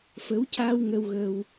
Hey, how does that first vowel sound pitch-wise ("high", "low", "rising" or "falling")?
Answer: rising